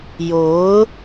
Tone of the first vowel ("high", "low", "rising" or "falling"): rising